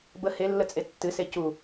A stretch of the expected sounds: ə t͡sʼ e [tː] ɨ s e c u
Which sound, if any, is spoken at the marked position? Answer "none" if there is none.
tː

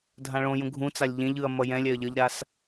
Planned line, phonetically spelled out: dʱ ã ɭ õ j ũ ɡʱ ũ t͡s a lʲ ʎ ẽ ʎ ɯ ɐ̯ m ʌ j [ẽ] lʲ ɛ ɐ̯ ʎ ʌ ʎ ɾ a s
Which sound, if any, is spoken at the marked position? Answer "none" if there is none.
ɛ̃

